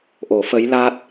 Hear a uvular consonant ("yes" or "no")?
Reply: no